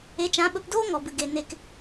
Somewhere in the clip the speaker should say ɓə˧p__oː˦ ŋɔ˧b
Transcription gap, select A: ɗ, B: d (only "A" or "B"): B